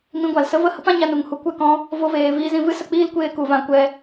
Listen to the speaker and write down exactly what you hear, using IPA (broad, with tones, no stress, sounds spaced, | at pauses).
m ĩ˧ ɡʷ a˨ l s ə˦ v ə˦˨ h ə˦ p ã˦ ɲ a˧ n u˨ ŋ h u˨ kʷ ɛ˦˨ k ɔ̃˧ | v o˧ v eː˨ v iː˧ z ĩ˧ v ɨ˦ s ə˧ k͡p iː˦ l kʷ eː˧ k u˨ v ã˧ kʷ ɛ˧